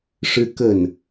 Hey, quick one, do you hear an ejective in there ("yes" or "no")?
no